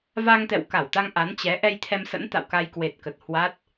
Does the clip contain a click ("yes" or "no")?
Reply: no